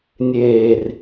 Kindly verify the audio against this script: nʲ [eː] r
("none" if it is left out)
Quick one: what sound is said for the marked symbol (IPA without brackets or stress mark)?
eː